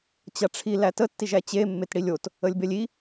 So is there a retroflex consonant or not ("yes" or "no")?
yes